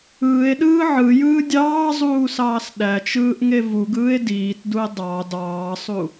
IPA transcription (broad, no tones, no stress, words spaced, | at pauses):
ɯːe̯ɗɯː ʕɯjɯː dʲɑːzˤuːsɑːs ɗæt͡ʃɯːʔŋe vuɡɯːe̯ diːtdue̯ dˤɑ dɑːsˤu